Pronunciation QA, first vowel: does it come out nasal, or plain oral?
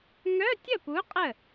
oral